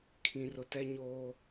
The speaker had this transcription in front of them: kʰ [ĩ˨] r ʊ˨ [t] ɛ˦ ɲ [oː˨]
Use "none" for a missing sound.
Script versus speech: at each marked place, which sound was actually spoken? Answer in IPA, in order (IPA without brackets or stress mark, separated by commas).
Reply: ĩ˨, t, oː˦